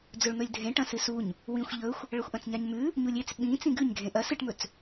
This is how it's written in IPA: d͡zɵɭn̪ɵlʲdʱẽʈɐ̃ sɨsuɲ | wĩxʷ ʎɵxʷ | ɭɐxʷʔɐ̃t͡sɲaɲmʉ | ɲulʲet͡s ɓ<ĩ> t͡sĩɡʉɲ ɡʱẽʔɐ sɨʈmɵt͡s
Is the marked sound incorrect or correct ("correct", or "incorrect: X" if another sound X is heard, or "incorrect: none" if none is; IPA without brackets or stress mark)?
correct